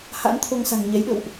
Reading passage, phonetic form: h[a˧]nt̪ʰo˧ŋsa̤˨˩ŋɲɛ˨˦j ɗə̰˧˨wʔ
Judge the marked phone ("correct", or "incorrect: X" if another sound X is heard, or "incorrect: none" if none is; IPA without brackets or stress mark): incorrect: a̰˧˥